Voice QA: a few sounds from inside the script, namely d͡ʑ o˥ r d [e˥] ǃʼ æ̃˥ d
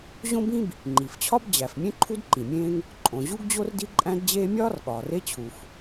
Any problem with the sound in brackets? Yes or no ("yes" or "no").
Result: yes